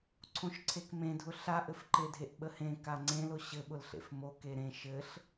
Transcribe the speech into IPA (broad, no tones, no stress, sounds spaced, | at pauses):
ǀʰ õ ʃ ǀʰ e k m ẽ dʱ ʊ ɬ a ʔ ɘ f ǃ e dʱ e ʔ ɓ ə h ẽ k a ŋ͡ǀ ẽ l ʊ ɕ ɘ ɓ ʊ l ɬ ḛ f m o k e ɾ ẽ ʃ ɘ ɬ